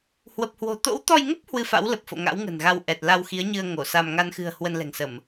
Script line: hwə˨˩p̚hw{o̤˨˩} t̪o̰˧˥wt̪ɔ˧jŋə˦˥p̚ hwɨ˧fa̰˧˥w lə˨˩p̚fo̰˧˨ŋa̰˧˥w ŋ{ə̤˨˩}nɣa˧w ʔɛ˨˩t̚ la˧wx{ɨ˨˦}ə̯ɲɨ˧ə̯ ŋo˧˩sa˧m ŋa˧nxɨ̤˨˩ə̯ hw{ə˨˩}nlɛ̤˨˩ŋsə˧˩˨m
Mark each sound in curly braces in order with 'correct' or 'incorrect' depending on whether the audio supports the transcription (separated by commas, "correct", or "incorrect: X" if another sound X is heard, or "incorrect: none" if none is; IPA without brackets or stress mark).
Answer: correct, correct, incorrect: i˨˦, incorrect: ə˧